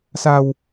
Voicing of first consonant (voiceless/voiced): voiceless